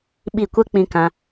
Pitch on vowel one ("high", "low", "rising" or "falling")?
falling